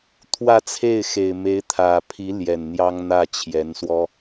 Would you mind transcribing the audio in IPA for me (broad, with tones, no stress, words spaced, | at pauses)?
t̪ʰwä˥˧t͡sʰe˥˩ɪ̯xe˨˩ɪ̯ me˧˥ɪ̯t̪ʰä˨˩ pʰi˧˥ ljɛ˨˩nn̪jɑ˥ŋ n̪ä˥˩t͡ɕʰjɛ˧˥n swɔ˥